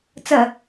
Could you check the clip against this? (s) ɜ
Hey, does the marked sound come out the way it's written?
no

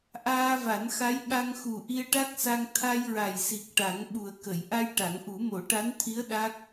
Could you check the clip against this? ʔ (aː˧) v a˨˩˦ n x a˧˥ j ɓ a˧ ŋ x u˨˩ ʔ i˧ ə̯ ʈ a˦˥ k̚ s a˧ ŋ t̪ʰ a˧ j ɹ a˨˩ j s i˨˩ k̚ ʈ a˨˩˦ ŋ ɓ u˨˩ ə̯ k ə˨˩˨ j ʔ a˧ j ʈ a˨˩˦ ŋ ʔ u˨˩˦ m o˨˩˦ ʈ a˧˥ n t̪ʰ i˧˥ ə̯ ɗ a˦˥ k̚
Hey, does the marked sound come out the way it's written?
yes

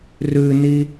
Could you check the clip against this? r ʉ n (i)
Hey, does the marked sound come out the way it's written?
yes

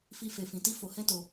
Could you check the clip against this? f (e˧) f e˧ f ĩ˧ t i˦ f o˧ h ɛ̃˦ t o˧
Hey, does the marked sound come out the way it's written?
no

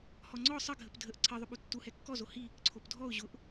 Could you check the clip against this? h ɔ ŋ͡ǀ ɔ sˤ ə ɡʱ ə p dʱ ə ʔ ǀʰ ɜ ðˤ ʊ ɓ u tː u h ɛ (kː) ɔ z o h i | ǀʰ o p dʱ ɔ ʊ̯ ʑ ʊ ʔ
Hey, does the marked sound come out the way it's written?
yes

